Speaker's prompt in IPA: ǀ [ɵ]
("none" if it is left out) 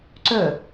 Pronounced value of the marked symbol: ɵ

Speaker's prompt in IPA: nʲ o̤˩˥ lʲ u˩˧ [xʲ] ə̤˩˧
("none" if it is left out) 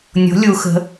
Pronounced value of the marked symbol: x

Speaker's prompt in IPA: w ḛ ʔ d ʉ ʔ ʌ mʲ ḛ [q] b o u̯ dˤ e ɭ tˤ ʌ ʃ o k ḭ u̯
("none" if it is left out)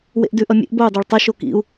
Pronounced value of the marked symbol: ʔ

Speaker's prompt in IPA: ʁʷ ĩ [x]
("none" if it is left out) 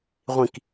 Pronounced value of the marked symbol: k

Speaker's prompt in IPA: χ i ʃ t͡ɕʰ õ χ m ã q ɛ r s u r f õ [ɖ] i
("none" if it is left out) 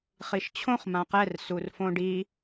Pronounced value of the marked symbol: ɖ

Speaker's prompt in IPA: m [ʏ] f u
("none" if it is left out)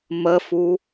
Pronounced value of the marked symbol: ə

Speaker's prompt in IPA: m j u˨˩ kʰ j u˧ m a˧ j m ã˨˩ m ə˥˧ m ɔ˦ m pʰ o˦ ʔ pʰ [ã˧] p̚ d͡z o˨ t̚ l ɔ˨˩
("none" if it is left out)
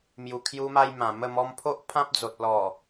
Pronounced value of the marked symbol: ã˦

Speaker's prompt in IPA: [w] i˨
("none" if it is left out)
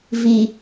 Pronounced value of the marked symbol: v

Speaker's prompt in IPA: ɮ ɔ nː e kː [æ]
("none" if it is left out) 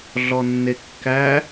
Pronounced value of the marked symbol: æ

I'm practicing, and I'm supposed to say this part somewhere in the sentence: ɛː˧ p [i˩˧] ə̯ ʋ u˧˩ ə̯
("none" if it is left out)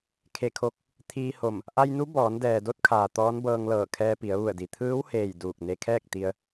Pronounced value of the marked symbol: i˩˧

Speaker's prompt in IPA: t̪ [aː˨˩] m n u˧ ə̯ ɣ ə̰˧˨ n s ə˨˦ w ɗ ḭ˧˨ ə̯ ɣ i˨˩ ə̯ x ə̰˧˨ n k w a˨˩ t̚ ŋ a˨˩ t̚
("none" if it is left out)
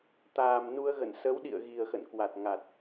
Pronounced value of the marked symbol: aː˨˩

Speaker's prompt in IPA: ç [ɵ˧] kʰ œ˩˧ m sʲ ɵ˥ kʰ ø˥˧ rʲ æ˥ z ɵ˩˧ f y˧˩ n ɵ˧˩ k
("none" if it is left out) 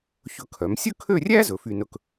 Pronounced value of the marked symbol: ɵ˧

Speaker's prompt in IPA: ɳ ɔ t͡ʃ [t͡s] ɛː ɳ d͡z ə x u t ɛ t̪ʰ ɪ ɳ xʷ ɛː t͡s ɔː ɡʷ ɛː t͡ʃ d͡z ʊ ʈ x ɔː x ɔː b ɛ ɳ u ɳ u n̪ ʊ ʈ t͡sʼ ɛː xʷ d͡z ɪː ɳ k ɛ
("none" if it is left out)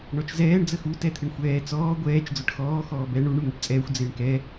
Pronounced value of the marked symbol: z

